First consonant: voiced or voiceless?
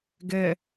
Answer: voiced